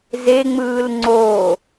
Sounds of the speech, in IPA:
z e ŋ͡m ɯː l ŋ͡ǀ o

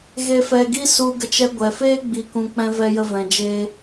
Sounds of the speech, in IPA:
ɣ e˧ f ɛ˧ ɡ i˦ s u˧ ɡ ə˧ t͡ʃ ɛ˧ ɡʷ ɛ˨ f eː˦ ɡ͡b i˧ k ũ˧ k͡p ɛ̃˧ v ɛ˧ j ə˧ v ɛ̃˨ d͡ʒ e˧

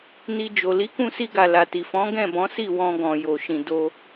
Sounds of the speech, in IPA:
n i˧ d͡ʒ o˨ l i˨˦ k ũ˧ s i˧ ɡ a˨ l a˨ t i˨ f ɔ̃˨˦ ɡ ɛ̃˦˨ b ɔ̃˨˦ s i˦˨ w ɔ̃˧ ɡ ɔ̃˨ j o˨ ʃ ĩ˨ d o˧

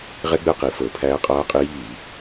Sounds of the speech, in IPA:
ʁ ɛ˦˥ ɡ͡b ɛ˦˨ q i˧˩˧ f əː˧˩˧ pʰ æː˦˥ qʼ aː˦˥ qʼ iː˦˥ ʎ i˧˩˧

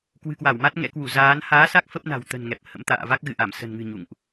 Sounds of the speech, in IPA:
k w ɨ̤˨˩ k w a˧˩ w m a˦˥ t̚ ŋ ɛ̰˧˥ k w u˧˩ z aː˨˦ n h aː˨˦ s a˦˥ k̚ f ə˦˥ p̚ n a̤˨˩ w t̪ ə̤˨˩ n ŋ ɛ˨˩ p̚ h ə̰˧˥ m t̪ a̰ː˧˨ v a˦˥ k̚ ɣ ɨ̰˧˨ ʔ a˧˩ m s ə̤˨˩ n ŋ ɨ̤˨˩ ɲ ṵ˧˨ ŋ ʔ

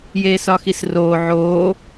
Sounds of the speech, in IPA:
j eː s ɒ x i s r oː ʕ oː

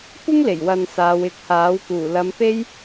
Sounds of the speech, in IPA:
kʷ ɪ˥ ŋ l e˨˩ j w ɐ˨ n s aː˨˧ w ɪ˨˥ k̚ h aː˨˥ w k uː˨˩ l ɐ˨˧ m p e˥ j

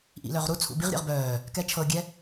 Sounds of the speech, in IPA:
ʔ ḭ l œ ʁ ɾ u t͡sʰ ṵ b i ʁ ɾʲ ɛ̰ ʁ b œː | k ɛ t͡ʃʰ ɤ ɡʲ ɛ

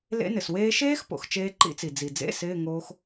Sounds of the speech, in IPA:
l ḛ˦˥ n ɪ˩ s w eː˦˥ ʃ eː˦˥ x p o̰˩ x t͡ʃ eː˦˥ ǃ ḭ˦˥ t͡s i˩ d͡z i˩ d͡z ḛ˧˥˧ s ɪː˧˥˧ ŋ oː˦˥ x

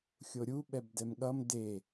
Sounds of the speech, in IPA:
xʲ o ɾʲ u ɓ ɛ b d ɛ m ɠ ʌ m d e

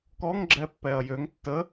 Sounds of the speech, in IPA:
k ɔ ŋ ɡ͡ǁ ɛ pː ɛ ɐ̯ j ø ŋ tː ə

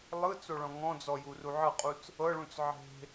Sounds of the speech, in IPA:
lˠ ɯ t͡s o ɭ ɔ̃ ŋ ɔ̃ d͡z ɔ j u r u ʕ ɤ qʼ u t͡s | ɤ ɭ ũ t͡s ʕ e̤

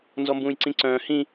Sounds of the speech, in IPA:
n z ɔ m b ũː j ǀ ĩ ǀ œ̃ː h ĩ

